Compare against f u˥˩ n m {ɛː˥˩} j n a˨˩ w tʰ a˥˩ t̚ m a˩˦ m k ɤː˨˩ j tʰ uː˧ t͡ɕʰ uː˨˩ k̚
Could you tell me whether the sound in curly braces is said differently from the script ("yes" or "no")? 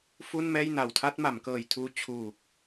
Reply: no